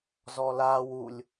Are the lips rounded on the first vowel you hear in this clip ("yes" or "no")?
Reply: yes